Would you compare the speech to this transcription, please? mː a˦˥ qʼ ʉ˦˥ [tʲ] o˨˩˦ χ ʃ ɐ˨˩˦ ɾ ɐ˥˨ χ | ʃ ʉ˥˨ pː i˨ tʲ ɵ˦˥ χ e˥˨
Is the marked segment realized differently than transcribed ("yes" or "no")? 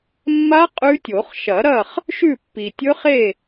no